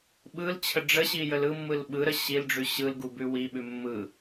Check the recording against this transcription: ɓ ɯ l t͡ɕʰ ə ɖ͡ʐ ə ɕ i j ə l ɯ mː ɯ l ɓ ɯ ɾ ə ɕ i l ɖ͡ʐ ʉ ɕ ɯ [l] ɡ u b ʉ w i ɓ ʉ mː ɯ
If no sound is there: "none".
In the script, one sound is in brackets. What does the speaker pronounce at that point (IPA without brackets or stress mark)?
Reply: l